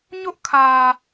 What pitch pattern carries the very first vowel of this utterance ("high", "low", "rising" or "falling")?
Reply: high